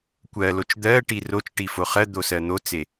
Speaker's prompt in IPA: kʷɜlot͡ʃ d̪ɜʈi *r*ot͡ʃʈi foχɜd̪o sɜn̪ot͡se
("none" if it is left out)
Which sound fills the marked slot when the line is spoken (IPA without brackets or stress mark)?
r